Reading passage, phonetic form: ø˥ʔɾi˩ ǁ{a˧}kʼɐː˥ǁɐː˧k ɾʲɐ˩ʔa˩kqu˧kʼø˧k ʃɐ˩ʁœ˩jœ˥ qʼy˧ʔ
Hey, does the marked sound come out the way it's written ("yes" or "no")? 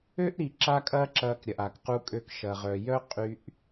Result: no